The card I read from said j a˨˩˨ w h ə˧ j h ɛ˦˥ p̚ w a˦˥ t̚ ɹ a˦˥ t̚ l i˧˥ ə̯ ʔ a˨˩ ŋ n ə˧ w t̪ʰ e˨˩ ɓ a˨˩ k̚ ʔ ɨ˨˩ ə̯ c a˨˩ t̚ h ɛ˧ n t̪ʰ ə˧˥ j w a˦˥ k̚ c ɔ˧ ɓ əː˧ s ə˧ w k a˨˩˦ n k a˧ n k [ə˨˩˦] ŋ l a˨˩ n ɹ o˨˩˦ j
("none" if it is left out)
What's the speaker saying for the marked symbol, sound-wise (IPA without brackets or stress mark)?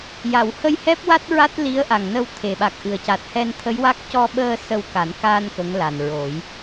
ə˧˥